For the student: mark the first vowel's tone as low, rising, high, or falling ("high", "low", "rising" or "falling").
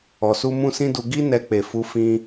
low